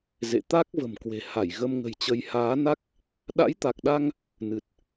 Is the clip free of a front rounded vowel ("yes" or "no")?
yes